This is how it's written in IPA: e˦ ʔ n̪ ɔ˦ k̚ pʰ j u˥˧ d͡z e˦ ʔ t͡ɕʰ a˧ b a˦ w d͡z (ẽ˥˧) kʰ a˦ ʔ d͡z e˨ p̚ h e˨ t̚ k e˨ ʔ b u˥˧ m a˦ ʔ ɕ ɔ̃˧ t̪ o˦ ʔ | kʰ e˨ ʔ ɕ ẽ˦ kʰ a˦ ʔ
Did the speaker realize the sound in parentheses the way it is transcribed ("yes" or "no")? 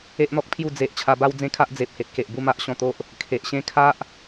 no